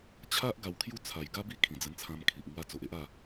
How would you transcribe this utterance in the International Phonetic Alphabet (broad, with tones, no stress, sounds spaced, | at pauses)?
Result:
t͡ɕʰ a˦ ʔ ɡ a˧ w kʰ j u˥˧ t͡sʰ a˨˩ j ɡ a˦ b i˦ kʰ ĩ˨˩ d͡z ə˧ n t͡sʰ ã˧ m kʰ i˨ ʔ ŋ w a˧ t͡s o˨ ʔ e˦ ʔ a˥˧